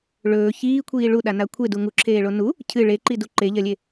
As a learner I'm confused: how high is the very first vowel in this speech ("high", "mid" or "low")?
mid